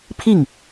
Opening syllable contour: falling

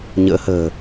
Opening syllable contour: rising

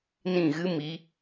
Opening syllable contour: falling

